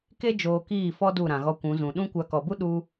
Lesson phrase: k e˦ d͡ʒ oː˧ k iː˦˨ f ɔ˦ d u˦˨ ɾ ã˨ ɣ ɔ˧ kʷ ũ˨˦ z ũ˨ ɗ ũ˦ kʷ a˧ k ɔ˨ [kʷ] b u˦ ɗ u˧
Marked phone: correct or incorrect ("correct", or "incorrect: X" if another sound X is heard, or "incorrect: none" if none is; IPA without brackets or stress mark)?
incorrect: none